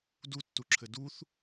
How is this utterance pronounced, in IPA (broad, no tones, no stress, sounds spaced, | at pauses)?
d u tː u ǁʰ ɘ d u θ